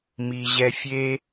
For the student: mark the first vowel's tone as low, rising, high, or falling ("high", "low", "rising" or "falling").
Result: low